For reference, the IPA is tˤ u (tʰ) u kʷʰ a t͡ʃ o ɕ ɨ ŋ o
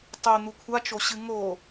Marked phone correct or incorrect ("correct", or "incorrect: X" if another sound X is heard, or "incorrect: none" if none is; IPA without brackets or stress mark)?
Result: incorrect: n̪